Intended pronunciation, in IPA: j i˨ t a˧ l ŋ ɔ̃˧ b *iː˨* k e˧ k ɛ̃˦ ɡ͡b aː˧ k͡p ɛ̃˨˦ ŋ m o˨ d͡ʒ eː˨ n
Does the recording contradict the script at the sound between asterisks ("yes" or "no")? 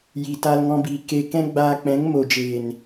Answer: no